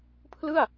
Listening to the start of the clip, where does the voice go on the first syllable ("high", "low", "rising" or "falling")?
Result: falling